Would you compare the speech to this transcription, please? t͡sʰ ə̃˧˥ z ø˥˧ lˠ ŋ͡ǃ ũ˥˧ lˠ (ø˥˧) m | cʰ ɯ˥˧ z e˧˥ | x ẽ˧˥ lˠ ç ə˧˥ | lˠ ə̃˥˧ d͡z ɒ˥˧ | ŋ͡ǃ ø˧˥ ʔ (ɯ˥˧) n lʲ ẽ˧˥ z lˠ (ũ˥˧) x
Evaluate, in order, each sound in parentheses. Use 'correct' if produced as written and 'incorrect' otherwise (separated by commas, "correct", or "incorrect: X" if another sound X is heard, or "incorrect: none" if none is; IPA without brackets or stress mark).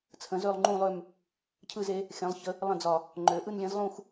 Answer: correct, correct, correct